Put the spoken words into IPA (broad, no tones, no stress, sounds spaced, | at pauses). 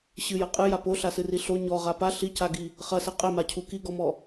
ɕ ɨ j ɐ qʼ ɨ j a p o ɬ a s ɨ r i ɬ o ɲ ɔ ʁ a p a ɬ i c a ɡ i | χ ɐ s ɛ qʼ ɛ m a cʰ u k i ɡ ɔ m ɔ